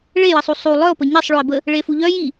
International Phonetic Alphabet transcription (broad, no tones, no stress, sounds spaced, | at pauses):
ɭ e j ə sˤ u sˤ u lˠ œ o̯ p ə ɲ e sˤ ɭ o e̯ b ə | ɭ e f u ʎ œ j i